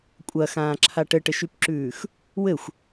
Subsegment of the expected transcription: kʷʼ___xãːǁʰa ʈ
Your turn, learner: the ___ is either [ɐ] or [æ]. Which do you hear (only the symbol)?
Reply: ɐ